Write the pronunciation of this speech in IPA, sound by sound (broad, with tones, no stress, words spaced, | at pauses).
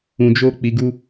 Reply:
ũ˨d͡ʒo˧k͡pi˨ɡu˧